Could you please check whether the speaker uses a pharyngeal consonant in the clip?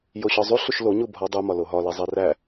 no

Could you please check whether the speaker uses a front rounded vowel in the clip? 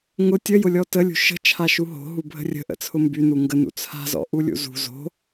yes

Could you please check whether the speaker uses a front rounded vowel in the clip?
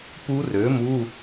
yes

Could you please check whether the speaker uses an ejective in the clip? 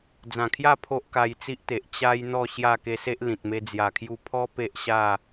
no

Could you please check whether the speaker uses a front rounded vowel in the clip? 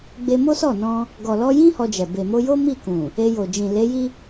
no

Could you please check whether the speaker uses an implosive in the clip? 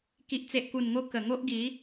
no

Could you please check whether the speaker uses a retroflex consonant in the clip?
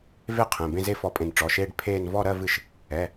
yes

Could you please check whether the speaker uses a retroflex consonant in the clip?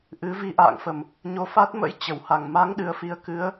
no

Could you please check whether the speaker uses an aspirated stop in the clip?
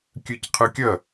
yes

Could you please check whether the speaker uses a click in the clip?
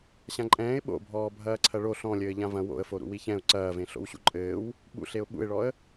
yes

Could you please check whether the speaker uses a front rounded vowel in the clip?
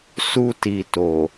no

